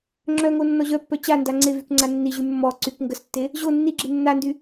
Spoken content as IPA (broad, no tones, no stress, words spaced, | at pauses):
ŋ͡ǁœŋo nːɔʑœpːœ t͡ɕanda ŋ͡ǀevyk ŋ͡ǀanːiʑy mːɔ ǀyk ŋɡəstːe | ʑo nːiɡ͡ǁe nːandy